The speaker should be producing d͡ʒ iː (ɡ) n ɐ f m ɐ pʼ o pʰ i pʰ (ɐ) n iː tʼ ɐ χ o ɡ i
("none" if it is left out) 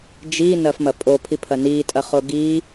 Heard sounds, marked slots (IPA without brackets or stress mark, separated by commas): none, ɐ